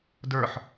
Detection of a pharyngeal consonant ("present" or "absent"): present